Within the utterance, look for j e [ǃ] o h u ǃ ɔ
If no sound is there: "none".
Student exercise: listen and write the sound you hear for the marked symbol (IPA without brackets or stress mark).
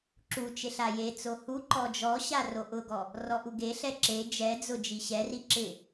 t͡s